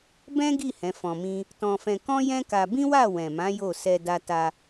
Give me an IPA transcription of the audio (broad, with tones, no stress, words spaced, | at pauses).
bɛ̃˦ɡi˦˨ hɛ̃˨˦fɔ̃˧mĩ˦ | tɔ̃˧fɛ̃˧ kɔ̃˦jɛ̃˦ka˧ bĩ˦wa˦˨ wɛ̃˨mã˨˦ jo˦˨sɛ˧ da˧ta˧